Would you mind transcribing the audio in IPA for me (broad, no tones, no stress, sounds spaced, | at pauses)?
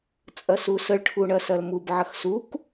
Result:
t͡sʼ ɐ s u s ə ɭ ʈʰ u ɳ ɐ s ɐ l m u b ʕ ɐ x s u k